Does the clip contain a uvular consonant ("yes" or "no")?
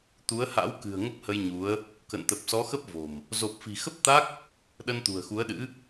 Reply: no